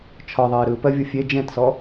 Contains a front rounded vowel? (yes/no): no